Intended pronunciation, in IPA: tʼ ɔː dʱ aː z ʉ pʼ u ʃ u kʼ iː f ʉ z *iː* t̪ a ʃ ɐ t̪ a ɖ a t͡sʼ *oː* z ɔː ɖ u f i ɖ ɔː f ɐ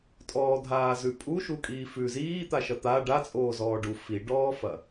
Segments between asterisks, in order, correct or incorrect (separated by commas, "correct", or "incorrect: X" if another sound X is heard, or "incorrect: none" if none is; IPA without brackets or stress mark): correct, correct